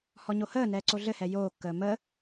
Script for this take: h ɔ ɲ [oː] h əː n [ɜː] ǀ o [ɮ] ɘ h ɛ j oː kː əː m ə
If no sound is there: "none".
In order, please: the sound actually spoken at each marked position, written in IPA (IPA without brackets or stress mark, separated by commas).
o, ɛː, ɮ